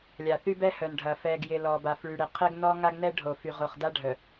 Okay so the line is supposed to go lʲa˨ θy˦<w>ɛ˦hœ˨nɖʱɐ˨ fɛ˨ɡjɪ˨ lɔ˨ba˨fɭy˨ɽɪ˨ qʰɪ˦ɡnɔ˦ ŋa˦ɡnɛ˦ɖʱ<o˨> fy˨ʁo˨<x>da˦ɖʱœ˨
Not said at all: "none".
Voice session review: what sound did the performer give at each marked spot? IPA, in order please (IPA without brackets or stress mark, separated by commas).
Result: b, o˨, χ